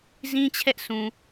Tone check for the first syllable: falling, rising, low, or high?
high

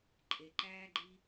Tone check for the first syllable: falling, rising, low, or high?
low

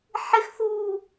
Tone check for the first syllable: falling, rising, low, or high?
high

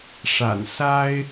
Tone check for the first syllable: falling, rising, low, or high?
low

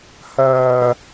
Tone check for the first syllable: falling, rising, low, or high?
high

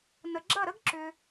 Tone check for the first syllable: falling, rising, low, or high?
low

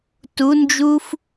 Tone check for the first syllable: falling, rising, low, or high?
rising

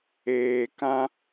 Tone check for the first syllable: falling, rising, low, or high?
low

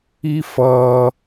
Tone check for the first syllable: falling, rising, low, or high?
high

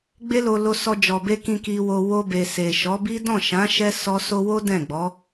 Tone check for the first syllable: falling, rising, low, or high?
high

